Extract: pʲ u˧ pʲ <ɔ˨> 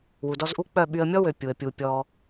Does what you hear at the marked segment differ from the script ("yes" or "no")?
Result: yes